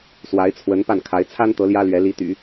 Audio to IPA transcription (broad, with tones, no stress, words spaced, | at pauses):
swa˧˥ɪ̯t͡sʰwə˧˥n pa˥˩n kʰa˧˥ɪ̯ t͡sʰa˥nt̪ɤ˧˥ ljä˥lɥɛ˧˥ li˧˥t̪y̰˨˩˦